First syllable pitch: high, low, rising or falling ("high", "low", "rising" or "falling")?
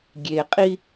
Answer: low